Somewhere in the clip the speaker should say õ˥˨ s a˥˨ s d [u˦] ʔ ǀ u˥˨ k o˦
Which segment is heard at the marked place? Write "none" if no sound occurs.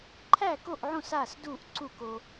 u˥˨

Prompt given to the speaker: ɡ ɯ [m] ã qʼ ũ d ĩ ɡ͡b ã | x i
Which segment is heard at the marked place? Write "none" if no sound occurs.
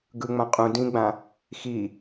ŋ͡m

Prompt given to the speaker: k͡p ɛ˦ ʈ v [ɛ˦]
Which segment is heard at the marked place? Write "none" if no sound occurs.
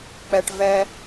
ɛ˦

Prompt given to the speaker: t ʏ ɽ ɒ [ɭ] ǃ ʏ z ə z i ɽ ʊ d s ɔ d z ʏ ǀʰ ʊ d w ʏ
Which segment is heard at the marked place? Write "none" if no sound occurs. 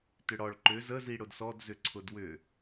ɭ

